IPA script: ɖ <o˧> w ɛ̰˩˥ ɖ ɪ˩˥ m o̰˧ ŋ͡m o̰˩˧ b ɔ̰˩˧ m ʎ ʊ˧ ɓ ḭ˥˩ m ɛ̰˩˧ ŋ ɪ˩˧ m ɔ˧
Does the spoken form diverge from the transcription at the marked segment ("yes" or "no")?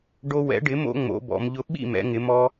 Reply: no